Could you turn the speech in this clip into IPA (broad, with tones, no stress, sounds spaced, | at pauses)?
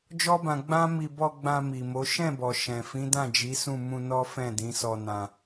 d͡ʒ ɔ˦ b ã˧ ɡ͡b ã˦ m i˧ b ɔ˧ ɡ͡b ã˧ m i˨ m o˨˦ ʃ ɛ̃˦˨ b ɔ˨ ʃ ɛ̃˨ f ĩ˨˦ d ã˦˨ d͡ʒ i˨˦ s ũ˦˨ m ũ˧ n ɔ˦ f ɛ̃˦˨ d ĩ˨˦ s ɔ˧ n ã˧